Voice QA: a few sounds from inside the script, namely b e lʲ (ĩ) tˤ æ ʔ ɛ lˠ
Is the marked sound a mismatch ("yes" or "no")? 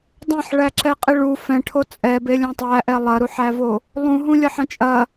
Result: yes